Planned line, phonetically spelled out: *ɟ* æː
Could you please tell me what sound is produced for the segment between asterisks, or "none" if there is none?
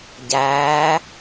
ɟ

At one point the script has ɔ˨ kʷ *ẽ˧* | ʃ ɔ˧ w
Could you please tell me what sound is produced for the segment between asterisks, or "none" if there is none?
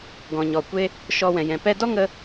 e˧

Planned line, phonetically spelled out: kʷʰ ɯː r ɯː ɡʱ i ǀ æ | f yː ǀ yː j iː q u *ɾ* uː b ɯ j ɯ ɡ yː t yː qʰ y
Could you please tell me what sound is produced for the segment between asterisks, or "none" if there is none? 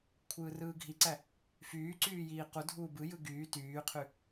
dʱ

